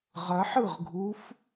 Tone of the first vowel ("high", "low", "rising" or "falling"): rising